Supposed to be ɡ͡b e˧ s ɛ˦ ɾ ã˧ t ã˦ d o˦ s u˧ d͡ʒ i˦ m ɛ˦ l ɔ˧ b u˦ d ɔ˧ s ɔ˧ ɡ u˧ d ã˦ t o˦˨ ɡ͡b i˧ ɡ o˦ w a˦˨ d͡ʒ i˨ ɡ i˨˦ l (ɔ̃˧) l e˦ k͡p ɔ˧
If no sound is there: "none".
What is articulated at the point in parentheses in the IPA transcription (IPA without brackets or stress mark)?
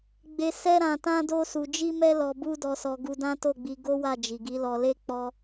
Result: ɔ˧